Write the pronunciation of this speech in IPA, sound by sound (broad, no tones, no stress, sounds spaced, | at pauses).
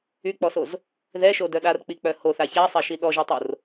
y k͡p ɔ s o z | ð ɛ ʃ o d œ ɗ a r k͡p i k͡p œ h o θ a ç a sˤ ɛ ʃ i ɗ ɔ ʒ i tˤ o r